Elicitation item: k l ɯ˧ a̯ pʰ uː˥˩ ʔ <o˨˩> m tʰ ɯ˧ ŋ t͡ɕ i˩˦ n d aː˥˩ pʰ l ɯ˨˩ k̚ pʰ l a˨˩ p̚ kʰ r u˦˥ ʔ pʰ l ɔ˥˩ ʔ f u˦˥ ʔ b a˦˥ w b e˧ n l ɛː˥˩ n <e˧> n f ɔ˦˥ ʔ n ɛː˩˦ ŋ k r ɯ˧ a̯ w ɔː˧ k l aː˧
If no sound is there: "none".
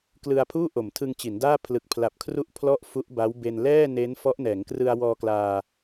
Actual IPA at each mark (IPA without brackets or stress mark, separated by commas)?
o˨˩, e˦˥